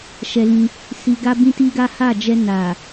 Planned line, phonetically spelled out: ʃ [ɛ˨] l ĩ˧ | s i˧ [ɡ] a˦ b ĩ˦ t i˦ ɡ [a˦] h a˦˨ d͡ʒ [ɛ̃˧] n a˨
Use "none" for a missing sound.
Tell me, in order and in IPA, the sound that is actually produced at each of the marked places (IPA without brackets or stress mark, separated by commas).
ɛ˧, ɡ, a˦, ɛ˧